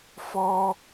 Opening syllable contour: high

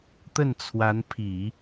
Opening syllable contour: falling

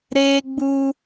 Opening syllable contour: high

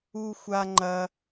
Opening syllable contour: high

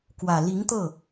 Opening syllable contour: low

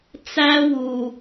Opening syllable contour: high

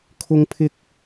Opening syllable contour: high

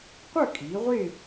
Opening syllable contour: falling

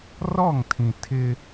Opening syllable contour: falling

